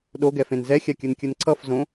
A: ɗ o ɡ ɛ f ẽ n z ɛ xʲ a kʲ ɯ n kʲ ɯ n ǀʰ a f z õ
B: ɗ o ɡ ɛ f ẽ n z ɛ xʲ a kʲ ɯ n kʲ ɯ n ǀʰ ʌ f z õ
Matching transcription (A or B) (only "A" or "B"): B